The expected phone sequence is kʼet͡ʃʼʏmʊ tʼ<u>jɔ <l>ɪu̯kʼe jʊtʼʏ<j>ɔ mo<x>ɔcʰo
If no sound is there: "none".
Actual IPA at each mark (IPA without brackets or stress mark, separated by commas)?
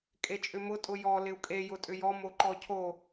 ʊ, l, j, ǃ